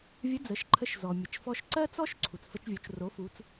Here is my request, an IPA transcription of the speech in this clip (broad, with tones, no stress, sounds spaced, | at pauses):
vʲ ə˧˥ d͡z ə˩˧ ʃ ǃʰ ə˧ ʃ z ɔ˩ mʲ ə˩ t͡ʃ f ɔ˧ ʃ ǀ ɜ˥ t͡s ɔ˥ ʃ ǀʰ u˩ t͡s f ə˧ t͡ʃ vʲ o˩˧ t͡ʃ r o˩˧ f u˩˧ t͡s